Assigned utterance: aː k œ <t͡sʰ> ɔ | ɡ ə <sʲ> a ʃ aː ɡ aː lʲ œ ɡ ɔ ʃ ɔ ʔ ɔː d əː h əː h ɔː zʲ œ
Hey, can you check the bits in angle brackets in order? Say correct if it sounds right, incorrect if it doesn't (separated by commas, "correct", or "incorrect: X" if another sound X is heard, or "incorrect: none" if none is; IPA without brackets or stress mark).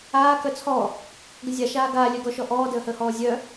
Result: correct, incorrect: zʲ